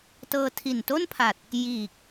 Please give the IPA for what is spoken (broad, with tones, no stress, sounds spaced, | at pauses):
t ɤː˧ tʰ i˨˩ n t o˥˩ n pʰ a˨˩ t̚ | j iː˨˩ k̚